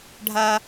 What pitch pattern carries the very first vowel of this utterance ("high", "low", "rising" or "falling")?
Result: high